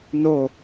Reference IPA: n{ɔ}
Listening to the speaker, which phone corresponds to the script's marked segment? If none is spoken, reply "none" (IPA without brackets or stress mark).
o